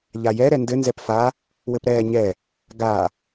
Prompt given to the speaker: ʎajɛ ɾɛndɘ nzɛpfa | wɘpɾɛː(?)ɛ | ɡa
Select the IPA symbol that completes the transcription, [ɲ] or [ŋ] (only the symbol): ɲ